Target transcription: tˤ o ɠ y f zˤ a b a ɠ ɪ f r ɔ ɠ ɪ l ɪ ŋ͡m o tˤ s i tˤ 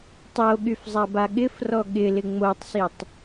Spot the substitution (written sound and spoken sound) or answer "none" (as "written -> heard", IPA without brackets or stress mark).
none